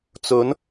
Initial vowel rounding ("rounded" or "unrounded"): rounded